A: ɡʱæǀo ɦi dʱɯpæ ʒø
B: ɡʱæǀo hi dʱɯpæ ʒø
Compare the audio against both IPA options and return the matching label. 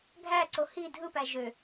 B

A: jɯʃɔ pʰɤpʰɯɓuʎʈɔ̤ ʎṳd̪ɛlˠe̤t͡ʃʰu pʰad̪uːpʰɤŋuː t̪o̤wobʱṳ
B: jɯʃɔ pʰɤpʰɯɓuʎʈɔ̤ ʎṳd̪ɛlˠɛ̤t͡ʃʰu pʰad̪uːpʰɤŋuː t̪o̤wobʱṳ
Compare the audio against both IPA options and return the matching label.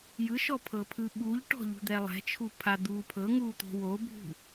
B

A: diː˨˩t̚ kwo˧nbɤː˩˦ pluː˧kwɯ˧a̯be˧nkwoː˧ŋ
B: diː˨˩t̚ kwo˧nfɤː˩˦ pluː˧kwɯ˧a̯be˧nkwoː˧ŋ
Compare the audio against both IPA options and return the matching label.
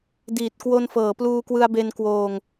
B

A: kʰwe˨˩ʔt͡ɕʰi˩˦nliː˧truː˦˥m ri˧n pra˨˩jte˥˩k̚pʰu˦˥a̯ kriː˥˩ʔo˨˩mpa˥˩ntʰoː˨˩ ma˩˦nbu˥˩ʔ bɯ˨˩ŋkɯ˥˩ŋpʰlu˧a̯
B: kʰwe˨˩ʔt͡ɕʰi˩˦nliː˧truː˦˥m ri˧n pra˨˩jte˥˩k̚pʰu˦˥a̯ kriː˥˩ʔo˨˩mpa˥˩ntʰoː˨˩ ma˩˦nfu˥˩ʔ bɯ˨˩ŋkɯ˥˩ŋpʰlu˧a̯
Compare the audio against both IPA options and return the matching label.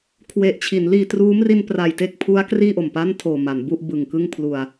A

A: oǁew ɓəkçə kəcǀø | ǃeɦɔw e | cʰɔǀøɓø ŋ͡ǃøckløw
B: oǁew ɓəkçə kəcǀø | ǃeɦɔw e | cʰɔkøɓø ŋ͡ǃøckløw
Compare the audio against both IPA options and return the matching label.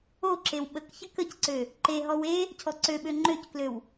A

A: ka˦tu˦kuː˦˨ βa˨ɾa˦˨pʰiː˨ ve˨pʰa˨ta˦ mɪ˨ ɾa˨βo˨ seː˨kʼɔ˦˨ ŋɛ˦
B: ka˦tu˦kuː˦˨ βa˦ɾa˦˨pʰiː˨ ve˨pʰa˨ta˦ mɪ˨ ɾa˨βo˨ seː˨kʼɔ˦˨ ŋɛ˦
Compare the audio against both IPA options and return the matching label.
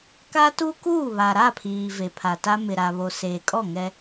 A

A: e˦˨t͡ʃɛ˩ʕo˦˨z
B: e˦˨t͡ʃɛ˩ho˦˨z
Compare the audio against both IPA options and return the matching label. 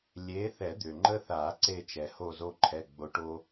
B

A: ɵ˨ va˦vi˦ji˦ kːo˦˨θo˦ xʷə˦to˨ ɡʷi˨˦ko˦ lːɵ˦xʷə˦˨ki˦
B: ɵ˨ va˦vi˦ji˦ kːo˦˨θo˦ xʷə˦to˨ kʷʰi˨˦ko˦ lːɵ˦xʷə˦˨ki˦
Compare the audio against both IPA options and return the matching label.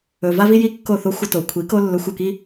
B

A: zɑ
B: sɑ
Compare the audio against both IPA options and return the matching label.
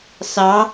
B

